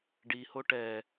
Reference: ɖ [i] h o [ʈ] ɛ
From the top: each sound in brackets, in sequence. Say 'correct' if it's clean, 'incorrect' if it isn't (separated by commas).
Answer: correct, correct